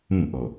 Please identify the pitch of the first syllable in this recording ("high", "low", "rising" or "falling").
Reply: falling